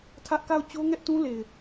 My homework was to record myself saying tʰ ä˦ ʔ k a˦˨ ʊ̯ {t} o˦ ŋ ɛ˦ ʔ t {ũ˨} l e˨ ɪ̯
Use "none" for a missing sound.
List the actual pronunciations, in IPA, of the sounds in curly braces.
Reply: t͡ɕ, ũ˦

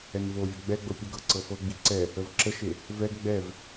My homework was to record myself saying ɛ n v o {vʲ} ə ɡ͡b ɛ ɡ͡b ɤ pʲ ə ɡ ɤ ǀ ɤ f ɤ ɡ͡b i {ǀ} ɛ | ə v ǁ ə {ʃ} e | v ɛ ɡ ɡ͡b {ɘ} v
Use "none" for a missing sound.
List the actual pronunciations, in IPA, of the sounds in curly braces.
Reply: vʲ, ǀ, ʃ, ɛ

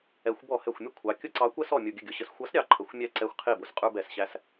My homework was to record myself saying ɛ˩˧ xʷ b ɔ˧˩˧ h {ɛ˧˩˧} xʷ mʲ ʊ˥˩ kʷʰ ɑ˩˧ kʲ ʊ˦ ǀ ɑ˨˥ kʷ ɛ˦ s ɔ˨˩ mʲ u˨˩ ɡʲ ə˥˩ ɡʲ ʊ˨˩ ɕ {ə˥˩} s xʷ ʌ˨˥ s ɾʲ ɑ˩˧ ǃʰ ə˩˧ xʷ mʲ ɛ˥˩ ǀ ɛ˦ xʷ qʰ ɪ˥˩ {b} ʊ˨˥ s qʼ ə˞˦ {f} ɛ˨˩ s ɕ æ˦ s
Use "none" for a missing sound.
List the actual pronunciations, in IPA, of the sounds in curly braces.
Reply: ɛ˨˩, ə˨˥, b, b

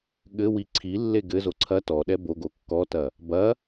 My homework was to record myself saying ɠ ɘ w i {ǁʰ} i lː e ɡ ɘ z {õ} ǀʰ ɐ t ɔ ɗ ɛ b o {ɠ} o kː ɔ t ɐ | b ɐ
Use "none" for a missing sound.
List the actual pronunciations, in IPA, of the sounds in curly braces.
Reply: ǀʰ, o, ɡ

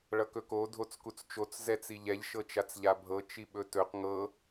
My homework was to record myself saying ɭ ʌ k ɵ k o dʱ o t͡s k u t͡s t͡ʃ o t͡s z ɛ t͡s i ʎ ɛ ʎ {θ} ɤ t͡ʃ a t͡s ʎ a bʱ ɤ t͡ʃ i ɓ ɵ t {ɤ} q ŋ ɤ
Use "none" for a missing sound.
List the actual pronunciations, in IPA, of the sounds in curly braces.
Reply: ʃ, ɵ

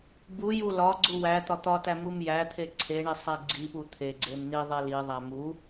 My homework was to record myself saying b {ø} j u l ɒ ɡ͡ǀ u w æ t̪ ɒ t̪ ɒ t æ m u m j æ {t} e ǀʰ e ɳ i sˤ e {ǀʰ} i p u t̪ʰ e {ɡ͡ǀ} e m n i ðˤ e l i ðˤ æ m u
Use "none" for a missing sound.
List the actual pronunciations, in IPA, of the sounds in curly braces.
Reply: u, t̪ʰ, ɡ͡ǀ, ɡ͡ǀ

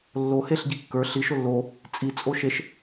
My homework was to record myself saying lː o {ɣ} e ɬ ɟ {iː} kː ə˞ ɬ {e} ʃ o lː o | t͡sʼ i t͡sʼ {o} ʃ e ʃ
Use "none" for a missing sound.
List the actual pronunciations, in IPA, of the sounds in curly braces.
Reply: h, i, i, o

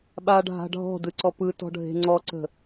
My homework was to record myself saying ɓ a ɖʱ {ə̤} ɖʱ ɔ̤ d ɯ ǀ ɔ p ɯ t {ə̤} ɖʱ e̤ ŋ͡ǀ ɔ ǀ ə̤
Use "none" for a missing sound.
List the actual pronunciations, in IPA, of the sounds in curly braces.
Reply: a̤, ɔ̤

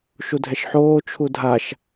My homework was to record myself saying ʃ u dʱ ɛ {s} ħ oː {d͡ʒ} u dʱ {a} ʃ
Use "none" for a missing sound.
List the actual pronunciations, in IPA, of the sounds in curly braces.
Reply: ʃ, t͡ʃʰ, a

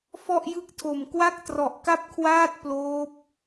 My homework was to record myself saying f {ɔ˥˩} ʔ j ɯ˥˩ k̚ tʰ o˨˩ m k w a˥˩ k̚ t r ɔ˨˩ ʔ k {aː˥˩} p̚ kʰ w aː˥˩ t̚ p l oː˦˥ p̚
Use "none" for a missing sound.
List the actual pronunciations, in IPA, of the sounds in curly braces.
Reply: ɔ˥˩, a˥˩

